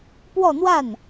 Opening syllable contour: falling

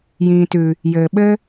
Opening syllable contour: low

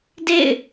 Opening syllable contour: falling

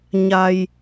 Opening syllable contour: low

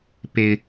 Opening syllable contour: low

